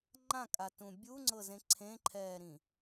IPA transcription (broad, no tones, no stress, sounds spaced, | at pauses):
ŋ͡ǃ ã kʼ a t ũ bʲ u ŋ͡ǀ ɤ z ẽ ǀʰ ẽ ǃʰ ɛː ɾ ĩ